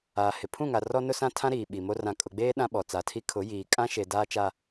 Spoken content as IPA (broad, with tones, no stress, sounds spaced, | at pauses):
aː˨ h ɪ˨ pʰ ũ˦˨ ŋ a˨ r ɔ˦ n ʊ˦ s ã˦ tʰ ã˦ ɾ iː˨ ɓ i˨ m o˦ r ã˨ kʼ ʊ˨ ɡ͡b eː˦ ɗ ã˦ ɓ ɔ˨ t͡s a˨˦ tʰ i˦ kʰ ʊ˨˦ j iː˨ kʼ ã˦ ʃ e˨ d aː˦ t͡ʃ a˦